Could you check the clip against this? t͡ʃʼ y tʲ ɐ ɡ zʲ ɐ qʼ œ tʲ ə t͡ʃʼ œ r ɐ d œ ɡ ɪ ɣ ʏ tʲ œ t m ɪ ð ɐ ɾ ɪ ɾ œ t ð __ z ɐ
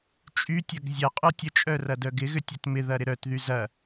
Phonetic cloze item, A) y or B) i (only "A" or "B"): A